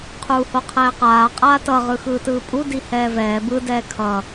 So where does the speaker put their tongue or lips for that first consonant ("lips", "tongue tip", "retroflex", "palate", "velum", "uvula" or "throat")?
uvula